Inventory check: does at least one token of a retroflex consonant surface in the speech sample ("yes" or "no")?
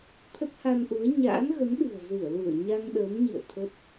no